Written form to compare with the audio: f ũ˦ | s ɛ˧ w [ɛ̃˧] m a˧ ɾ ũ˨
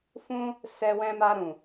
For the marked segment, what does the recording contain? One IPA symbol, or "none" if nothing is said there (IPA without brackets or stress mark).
ɛ̃˧